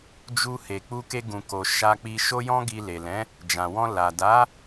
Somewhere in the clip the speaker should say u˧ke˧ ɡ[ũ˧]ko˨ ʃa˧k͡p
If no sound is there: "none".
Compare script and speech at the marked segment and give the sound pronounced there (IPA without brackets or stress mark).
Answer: ũ˨